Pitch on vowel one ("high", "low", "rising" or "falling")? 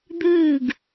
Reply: falling